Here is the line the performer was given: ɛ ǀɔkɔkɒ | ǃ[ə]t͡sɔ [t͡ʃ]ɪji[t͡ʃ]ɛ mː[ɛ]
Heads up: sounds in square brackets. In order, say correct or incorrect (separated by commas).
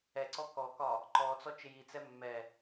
incorrect, correct, incorrect, correct